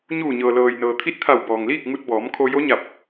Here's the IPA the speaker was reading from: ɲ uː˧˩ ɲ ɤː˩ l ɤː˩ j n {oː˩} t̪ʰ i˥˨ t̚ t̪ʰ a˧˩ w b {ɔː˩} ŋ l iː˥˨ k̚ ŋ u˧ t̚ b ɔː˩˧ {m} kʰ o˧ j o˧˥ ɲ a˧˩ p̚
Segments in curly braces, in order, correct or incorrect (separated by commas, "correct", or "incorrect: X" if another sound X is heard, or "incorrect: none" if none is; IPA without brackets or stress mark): incorrect: ɤː˩, correct, correct